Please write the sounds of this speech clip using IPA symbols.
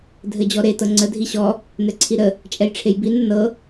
dʱɘd͡ʑɔɾe tɤŋ͡ǀə dʱiɕɔ | n̪ɛǀʰiɾə | t͡ʃʼɛjʈ͡ʂʰejbin ənɤ

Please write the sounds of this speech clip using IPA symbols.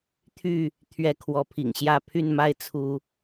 t̪ʰy˥˨ | t̪ʰɥɛ˥˨kʰwɔ˨˦pʰḭ˨˩ŋɕjä˥˨ pʰy˥˨nma˦ɪ̯ t͡sʰu˨˦

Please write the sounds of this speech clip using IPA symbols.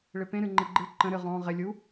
ɭɪpẽ ɾɨŋ͡ǃɪɡ͡ǃɨ ǃə̃ ɾɨʁɔ̃ ʁɪ lʲu

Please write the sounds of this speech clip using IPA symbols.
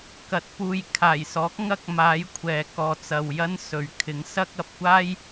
kɐ˨t̚ puː˨jkʰaː˨˩jsɔː˨˥k̚ ŋɐ˥k̚maː˨˥jkʷʰɛː˨ kɔː˨t͡sɐ˨w jɐ˥nsɵ˨ɥ kʰɪ˨˥ŋsɐ˥k̚ ɐ˨p̚kʷaː˥j

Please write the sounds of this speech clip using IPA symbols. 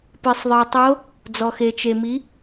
pɨ˩sˤðˤɨ˩i̯tˤo˧˥ | d͡zɔ˩xe˩ t͡ʃe˩mi˩˥

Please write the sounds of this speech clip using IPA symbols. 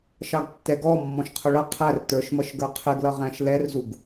ʃɑɡtːɛɡɔ mːɔ̃ʃqʰʊɭʌ qʰær tə˞ʃmʌʃɡə˞ qʰɪɡlʌ ʁæ̃ʃlɛrzuɡ

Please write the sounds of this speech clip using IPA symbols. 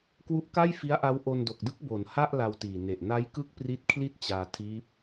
kwu˦˥ʔka˥˩jfi˦˥a̯ʔa˦˥w ʔo˧ndo˨˩k̚dɯ˥˩k̚ bo˩˦nha˥˩ʔ la˧wtiː˨˩ ne˨˩ʔna˦˥j kɯ˥˩k̚pri˦˥t̚kʰli˥˩t̚t͡ɕaː˧ tʰiː˦˥p̚

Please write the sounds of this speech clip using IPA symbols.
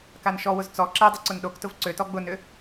kanʃɔwʊz t͡sɔ ǁɛdˤʊ ǀʊnɗoktʊv ǀøtɔ ɡ͡bʊnʏ

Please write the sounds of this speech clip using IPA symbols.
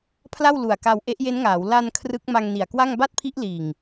pʰla˥˩wlu˨˩a̯ka˧w ʔe˦˥ʔje˦˥nŋaː˩˦w la˧n kʰrɯ˦˥k̚ma˧ŋni˨˩a̯kwa˥˩ŋ ba˥˩t̚pʰi˦˥ʔliː˨˩ŋ

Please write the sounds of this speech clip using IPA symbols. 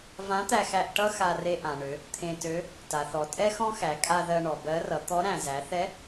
vã˧˥t̪æ˧xæ˧ʔ ʈʌ˥ xa˧re˧ʔã˩ɳø˩˧ | t̪ʰẽ˧tø˧˥ | ta˩θɔ˩ tʼɛ˥xɔ̃˥xæ˩˧ kʼa˧ ðɜ˧ɳɔ˩bɜ˧˥ rʌ˩˧t̪ɔ˧˥ɾæ̃˩ zæ˩˧θɛ˧˥

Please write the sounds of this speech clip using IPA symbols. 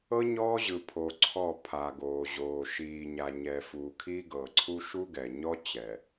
ɤ˦ ɲɔː˦ʑɯ˨pʰo˨ ǀʰɔ˦˨ pʰa˨ɡoː˨ʑoː˨ ʃiː˨ɲa˨ɲɛ˨ fuː˨kʰiː˦ɡɤː˨ǀʰu˦ ʃu˦ɡɛ˨ɲɔ˦ t͡ɕɛ˨

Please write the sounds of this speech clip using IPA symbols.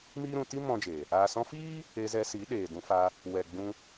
miː˦ɾũ˧ ti˦ mɔ̃˦d͡ʒe˨ | aː˨sɔ̃˧fiː˦ | e˧zɛ˧si˨˦ ɗeː˨dũ˧fa˧ | wɛ˨ ɡ͡bũ˦

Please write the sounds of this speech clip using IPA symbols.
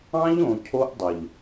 ɑ̃˦ʎõ˨ cʰo˦ʔdˤə˨ʎ

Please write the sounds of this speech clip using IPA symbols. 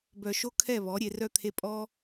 bœ˧ʃo˦ kʰɛ˦˨βɔ˨˦ɾʲe˧ rœ˦t̪ʰe˦ pʼɔ˦

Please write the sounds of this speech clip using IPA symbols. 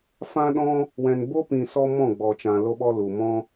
fã˦ɗɔ̃˦ | wɛ̃˨nbo˦pĩ˨ sɔ˧ mɔ̃˦˨ɡ͡bɔ˨t͡ʃã˨ lo˧ɓɔ˧ lu˨ mɔ̃˧

